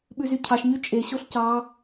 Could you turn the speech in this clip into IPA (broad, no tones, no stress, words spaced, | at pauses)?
ɓʉzycʰɑʃɲy t͡ʃʼeɕoɬ cɑ